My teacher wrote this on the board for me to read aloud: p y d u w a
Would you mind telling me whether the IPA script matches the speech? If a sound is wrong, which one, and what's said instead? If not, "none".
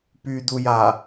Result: w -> j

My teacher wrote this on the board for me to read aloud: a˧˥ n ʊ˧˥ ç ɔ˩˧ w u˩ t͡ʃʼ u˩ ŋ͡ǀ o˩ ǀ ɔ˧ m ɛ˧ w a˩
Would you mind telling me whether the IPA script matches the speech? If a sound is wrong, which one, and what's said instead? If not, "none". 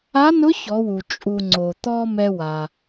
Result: ǀ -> t̪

